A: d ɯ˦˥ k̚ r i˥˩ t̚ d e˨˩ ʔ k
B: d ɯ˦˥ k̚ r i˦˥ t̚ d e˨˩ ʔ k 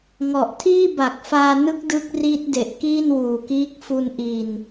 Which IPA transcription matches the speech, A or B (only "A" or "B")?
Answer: B